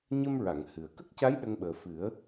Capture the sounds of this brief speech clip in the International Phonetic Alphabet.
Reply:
ɲ ə˧ m ɹ a˨˩˨ ŋ h ɨ˨˩ ə̯ k ə˦˥ k̚ c a˧˥ j ɗ ə˧ ŋ ɓ əː˨˩ f ɨ˨˩˦ ə̯

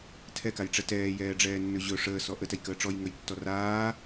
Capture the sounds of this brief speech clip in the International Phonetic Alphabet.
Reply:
tʰ ɛ k a j ʈ͡ʂ ɛ t ɛː j ɛː ɖ͡ʐ ɛː nː ɵ ʑ ɵ ʂ əː s ɔ ʔ ə t ɛ j k əː ʈ͡ʂ ɔ j ŋ ɵ j tː ɔ r aː

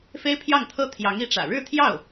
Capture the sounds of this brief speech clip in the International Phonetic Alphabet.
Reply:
f e˥ ɪ̯ pʰ j ɑ˥˩ ŋ t̪ʰ ɤ˥ t̪ʰ j ɑ˧˥ ŋ i˧˥ ʈ͡ʂ ä̰˨˩ ɻ ɻ̩˥˧ t̪ʰ j ɑ˥˩ ʊ̯

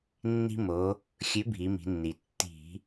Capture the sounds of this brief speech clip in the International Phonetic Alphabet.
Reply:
nː i̤˧ m o˩˧ | xʲ ʉ˨˥ bʱ i˩˧ m i̤˩˧ nː i˩ tː i̤˧˩˧

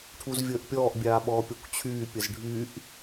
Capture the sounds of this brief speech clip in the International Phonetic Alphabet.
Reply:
ʈʰ u z vʲ əː ʔ pʲ ɔː ʔ bʲ aː ɓ ɔː pʲ ɔ kʷ t͡ɕʰ yː pʲ ə z ɖʱ y ʔ

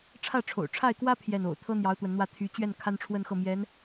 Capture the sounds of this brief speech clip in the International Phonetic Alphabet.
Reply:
ʈ͡ʂʰ ä˥˩ ʈ͡ʂʰ o̰˨˩ ʊ̯ ʈ͡ʂʰ a˥˩ ɪ̯ k w ä˥ pʰ j ɛ˥˩ n o̰˨˩ ʊ̯ t̪ʰ ɤ˥ n̪ j ɑ˧˥ ʊ̯ t̪ w ə˧˥ n n̪ w ä˥˩ t̪ʰ y˧˥ t͡ɕ ɥ ɛ˥˩ n kʰ a˥ n ʈ͡ʂʰ w ə˥˧ n x ɤ˥˩ m j ɛ˧˥ n

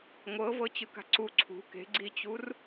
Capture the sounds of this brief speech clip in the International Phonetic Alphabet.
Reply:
ŋʷ ɤ v ɤ t͡ɕ ɯ k a̤ ǀ u ǀʰ ṳ k e̤ ɡ͡ǀ i t͡ɕ u r

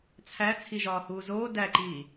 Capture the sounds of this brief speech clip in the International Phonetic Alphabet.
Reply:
t͡sʰ æ t͡sʰ i ʒ ɒː h uː z oː d æ ǃ iː

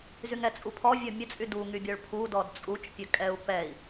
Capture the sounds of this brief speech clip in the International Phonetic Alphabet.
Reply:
z y ŋ ɛ t͡sʼ u pʰ ɔ vʲ ɔ mʲ ə t͡sʼ y d u ŋ y bʲ ɔ ɭ pʰ u d ɔ d t͡sʼ u t͡ʃ pʲ ə kʼ ɛ u̯ p ɛ i̯

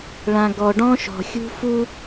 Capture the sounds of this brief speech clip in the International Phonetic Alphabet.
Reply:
ɭ ã˨ ɡ ɔ˨ ɖ ɔ̃˦ ʃ ɔ̤˨ xʲ ṳ˦ f u˦

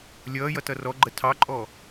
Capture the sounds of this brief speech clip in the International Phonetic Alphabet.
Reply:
lʲ ʌː j ʌ t ʌ r ɔ ɡ͡ǃ ə tʰ ɑ ǃʼ ɔ

